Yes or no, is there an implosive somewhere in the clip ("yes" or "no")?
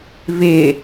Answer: no